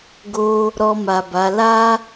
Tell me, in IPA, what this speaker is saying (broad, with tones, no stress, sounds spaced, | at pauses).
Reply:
ɡ o˧ | ɾ ɔ˧ m a˨ b a˨˦ l a˦